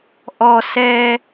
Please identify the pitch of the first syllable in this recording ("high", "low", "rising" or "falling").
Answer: low